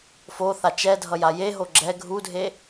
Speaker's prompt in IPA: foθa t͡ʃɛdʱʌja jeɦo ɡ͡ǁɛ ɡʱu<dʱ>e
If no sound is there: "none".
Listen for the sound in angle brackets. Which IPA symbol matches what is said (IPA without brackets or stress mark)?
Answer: dʱ